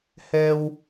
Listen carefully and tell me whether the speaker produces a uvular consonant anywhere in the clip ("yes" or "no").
no